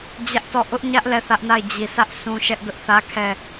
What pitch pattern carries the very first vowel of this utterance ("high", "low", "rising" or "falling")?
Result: high